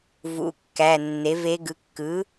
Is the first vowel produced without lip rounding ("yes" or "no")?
no